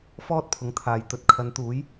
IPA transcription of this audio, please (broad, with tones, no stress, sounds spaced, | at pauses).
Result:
f ɔː˥ t̚ pʰ ʊ˨˥ ŋ t̪ʰ aː˨ j t̪ ɵ˨ t̚ kʰ ɐ˨˧ n t̪ uː˨˥ j